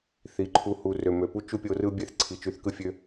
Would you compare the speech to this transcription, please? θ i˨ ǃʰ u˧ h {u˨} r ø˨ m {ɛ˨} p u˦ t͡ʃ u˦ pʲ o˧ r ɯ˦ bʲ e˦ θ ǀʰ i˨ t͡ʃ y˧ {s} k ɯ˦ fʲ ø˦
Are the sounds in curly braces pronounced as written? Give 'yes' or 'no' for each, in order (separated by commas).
yes, no, no